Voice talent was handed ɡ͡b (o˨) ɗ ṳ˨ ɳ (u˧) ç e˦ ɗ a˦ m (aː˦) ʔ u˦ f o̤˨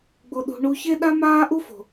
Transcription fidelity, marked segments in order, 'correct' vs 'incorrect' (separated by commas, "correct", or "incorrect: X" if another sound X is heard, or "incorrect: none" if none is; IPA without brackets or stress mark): correct, correct, correct